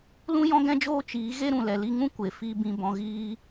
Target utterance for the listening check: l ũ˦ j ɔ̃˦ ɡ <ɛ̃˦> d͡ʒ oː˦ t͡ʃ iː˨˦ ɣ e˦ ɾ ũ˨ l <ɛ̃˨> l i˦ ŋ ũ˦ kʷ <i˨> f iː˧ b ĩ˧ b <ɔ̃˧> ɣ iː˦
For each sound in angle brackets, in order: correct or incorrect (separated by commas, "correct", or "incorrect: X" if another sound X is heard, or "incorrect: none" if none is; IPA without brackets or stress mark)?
correct, incorrect: ɛ˨, incorrect: e˨, correct